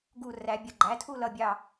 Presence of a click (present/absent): present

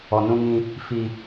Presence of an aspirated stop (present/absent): absent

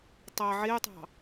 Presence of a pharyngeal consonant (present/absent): present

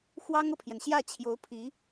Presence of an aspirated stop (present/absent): present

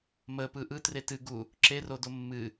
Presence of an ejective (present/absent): absent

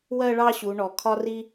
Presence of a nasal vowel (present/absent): absent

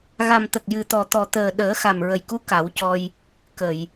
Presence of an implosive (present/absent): present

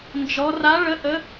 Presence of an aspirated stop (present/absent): absent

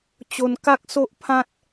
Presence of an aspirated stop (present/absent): present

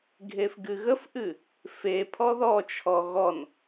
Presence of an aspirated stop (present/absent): present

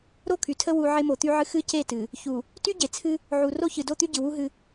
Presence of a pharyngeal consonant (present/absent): present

